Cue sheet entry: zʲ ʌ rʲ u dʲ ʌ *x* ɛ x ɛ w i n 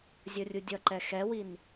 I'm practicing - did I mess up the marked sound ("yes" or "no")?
yes